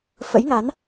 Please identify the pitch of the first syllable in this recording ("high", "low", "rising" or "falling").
rising